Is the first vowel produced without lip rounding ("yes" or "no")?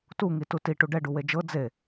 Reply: no